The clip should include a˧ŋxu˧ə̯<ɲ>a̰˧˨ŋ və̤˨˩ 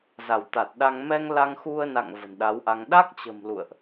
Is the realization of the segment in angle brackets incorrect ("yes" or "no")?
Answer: yes